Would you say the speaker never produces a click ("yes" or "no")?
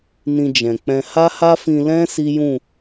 yes